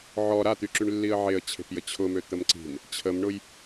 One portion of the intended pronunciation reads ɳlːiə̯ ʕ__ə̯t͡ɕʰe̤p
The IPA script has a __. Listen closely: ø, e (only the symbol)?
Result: e